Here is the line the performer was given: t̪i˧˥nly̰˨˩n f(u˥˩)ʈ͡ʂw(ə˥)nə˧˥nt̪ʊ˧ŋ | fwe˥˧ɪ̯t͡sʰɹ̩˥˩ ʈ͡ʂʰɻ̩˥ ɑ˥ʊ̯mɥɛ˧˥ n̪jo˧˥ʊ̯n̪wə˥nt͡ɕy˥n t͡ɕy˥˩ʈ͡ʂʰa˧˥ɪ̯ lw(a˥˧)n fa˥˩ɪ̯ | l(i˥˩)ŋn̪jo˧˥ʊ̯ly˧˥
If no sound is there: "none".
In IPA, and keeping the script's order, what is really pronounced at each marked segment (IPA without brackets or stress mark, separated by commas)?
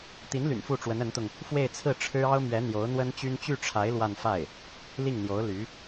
u˥˩, ə˧˥, a˥˧, i˥˩